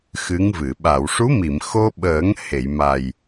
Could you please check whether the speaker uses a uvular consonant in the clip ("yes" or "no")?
no